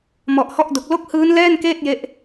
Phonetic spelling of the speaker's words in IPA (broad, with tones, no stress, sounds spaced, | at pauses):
m ɔ˨˩ ʔ h ɔ˥˩ ʔ d o˨˩ k̚ l o˥˩ k̚ h ɯː˦˥ n l ɛː˥˩ n k eː˥˩ t̚ j e˥˩ ʔ